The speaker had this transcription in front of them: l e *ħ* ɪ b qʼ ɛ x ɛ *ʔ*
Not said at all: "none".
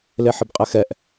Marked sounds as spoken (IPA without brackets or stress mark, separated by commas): ħ, ʔ